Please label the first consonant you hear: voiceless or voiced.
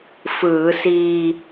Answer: voiceless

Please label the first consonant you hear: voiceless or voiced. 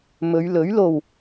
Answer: voiced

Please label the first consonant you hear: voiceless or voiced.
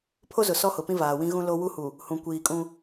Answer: voiceless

